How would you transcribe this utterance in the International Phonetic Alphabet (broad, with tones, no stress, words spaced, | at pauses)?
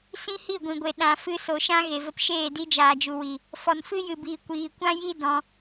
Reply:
sĩ˦hi˦˨ɡʷĩ˨ɡʷe˨ ɗã˨ fɨ˧so˨ʃã˦ ɣe˨və˧pʃeː˦˨ di˦d͡ʒaː˨d͡ʒu˨ wi˨ | fɔ˨nfɨ˦jɨ˨biː˨ kʷiː˨kʷã˦ ji˦ dɔ̃˧